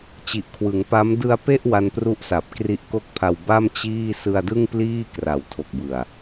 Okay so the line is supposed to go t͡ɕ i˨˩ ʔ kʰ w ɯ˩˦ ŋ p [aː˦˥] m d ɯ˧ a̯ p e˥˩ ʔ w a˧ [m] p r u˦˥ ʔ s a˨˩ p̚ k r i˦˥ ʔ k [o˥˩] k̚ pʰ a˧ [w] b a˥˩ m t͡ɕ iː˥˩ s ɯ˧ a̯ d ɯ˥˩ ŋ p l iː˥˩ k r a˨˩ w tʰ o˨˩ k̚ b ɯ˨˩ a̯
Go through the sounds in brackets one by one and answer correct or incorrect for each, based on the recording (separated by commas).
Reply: incorrect, incorrect, correct, correct